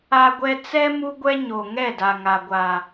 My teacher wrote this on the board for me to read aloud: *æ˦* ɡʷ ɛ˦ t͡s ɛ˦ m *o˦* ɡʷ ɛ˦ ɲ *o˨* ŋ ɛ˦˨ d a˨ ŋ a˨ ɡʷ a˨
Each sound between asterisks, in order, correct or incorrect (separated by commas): incorrect, incorrect, correct